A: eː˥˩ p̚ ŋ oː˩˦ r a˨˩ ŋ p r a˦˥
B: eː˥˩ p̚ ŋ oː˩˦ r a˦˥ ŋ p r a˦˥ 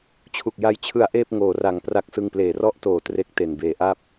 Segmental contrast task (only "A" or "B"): A